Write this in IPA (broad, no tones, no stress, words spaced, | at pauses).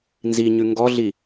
nziɲʉ ŋɡɔɮi